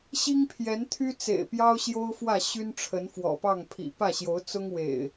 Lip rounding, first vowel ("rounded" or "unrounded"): unrounded